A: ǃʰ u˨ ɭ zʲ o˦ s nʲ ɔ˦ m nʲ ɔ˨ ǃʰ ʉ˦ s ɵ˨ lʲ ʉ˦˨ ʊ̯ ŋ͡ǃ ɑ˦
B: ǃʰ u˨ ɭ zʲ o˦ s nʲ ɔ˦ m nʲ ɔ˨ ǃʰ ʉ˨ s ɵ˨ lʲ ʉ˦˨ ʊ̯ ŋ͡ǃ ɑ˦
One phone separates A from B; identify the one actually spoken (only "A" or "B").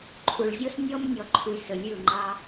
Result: B